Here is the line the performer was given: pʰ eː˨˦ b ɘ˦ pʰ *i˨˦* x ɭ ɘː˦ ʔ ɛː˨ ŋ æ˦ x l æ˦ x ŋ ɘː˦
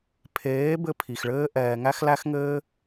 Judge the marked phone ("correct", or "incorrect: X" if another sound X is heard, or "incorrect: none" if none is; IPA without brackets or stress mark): incorrect: i˨